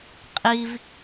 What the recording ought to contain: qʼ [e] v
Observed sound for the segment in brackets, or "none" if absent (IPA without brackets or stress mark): i